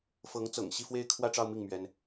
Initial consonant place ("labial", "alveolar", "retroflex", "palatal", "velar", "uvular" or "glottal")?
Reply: labial